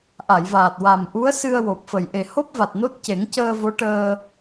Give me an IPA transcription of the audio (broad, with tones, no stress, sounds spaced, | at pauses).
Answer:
ʔ a˨˩˨ j v aː˨˩ t̚ w a˨˩ m ʔ u˧˥ ə̯ s ɨ˧ ə̯ w o˨˩ p̚ f ə˨˩ j ʔ e˨˩ h o˦˥ p̚ v a˨˩ t̚ n o˦˥ t̚ c e˨˩˦ ŋ c əː˧ v o˧˥ ʈ əː˧